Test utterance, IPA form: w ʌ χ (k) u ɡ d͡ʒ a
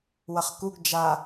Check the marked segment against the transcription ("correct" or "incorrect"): correct